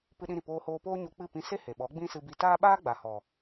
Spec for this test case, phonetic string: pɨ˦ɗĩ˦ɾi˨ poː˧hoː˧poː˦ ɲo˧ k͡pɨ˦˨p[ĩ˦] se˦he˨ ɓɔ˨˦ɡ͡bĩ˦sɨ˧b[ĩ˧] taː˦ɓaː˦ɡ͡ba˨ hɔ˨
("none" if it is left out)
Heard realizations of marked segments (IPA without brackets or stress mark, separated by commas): ĩ˧, i˧